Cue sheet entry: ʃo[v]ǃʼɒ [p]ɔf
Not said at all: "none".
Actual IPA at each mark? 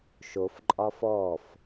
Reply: f, f

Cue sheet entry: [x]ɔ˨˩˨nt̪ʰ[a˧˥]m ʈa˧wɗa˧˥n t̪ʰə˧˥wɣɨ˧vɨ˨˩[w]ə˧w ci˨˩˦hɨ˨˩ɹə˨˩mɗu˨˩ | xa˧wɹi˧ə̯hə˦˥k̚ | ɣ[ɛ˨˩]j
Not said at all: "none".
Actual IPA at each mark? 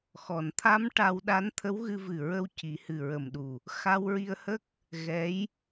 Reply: x, a˧˥, ɹ, ɛ˧˥

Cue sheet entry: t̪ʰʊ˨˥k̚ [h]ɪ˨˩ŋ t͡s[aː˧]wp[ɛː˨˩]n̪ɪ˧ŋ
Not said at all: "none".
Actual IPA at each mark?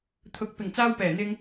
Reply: p, aː˧, ɛː˨˩

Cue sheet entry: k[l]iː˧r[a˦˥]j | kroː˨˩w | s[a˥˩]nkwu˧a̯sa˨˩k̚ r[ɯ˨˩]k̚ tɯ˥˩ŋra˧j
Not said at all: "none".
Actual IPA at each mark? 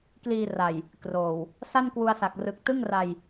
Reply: l, a˨˩, a˥˩, ɯ˨˩

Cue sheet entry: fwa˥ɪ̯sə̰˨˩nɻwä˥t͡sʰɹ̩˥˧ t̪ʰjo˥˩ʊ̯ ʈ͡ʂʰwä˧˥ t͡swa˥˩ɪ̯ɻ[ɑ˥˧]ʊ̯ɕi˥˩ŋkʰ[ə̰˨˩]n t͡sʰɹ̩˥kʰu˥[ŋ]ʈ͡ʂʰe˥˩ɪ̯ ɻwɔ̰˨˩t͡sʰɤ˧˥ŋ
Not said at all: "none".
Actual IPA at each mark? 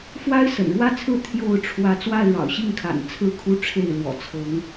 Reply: ɑ̰˨˩, a̰˨˩, none

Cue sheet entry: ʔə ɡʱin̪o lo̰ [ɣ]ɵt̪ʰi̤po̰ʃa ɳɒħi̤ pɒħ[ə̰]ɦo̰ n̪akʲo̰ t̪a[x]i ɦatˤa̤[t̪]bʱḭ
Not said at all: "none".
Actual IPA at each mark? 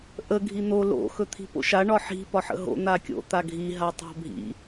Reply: x, ə̰, ɡʱ, none

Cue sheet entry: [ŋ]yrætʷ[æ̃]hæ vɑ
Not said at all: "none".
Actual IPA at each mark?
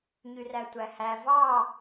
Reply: ɲ, æ

